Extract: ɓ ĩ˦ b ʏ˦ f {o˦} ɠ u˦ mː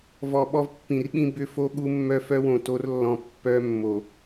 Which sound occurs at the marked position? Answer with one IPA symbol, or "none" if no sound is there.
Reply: o˦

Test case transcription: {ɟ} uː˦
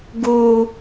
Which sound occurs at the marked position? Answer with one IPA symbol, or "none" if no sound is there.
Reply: ɡ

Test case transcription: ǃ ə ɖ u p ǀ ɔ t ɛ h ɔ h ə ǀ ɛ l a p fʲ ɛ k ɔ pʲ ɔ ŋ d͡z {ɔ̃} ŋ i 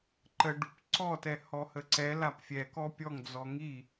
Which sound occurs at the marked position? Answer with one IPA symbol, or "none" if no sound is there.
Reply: ɔ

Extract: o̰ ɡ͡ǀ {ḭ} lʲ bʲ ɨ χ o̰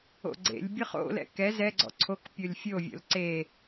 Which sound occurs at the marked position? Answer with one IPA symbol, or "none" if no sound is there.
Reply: ḛ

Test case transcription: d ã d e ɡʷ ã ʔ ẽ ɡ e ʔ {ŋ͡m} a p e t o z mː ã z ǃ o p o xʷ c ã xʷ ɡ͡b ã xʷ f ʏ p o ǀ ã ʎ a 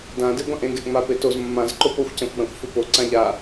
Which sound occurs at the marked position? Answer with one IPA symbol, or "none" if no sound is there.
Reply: ŋ͡m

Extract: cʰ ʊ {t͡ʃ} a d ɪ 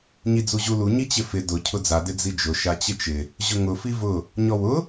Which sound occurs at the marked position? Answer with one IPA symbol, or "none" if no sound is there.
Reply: d͡z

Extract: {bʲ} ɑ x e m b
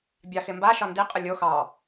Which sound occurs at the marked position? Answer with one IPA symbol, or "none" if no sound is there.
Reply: bʲ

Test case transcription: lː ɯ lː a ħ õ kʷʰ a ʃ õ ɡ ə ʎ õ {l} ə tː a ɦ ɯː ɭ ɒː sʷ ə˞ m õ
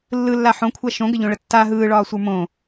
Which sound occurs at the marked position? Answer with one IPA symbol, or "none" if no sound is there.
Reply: ɭ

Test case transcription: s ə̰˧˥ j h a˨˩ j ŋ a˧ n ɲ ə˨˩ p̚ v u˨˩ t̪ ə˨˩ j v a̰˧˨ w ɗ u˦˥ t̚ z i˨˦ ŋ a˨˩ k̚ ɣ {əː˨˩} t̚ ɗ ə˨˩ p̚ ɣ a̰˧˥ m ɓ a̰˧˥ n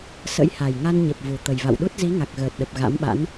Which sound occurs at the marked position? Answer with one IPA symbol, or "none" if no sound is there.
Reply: əː˨˩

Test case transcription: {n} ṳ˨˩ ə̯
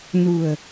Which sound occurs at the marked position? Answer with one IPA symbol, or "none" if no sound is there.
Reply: n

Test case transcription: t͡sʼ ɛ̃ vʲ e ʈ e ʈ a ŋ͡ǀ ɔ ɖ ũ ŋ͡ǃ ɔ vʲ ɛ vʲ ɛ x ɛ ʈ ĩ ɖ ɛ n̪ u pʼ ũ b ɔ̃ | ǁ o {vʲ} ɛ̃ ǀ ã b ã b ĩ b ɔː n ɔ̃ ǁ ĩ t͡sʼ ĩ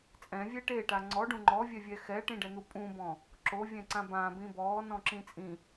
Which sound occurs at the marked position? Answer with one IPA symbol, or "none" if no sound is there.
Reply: vʲ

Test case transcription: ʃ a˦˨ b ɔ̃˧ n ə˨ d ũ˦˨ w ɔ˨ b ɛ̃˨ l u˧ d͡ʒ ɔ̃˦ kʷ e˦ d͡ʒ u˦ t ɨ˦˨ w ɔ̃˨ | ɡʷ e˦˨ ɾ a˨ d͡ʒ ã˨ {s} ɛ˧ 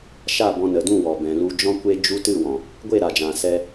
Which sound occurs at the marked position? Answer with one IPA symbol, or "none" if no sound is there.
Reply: s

